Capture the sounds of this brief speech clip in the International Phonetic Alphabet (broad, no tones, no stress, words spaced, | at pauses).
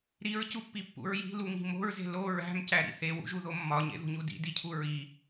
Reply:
ɾiɹcupːipːṵɹ ji̤luŋi̤ mo̤ɹze̤ lo ɹæ̤mcæɾḭ θewṵʒuðo mːɒɲḛðṳɲu dḭdicʰu ɹi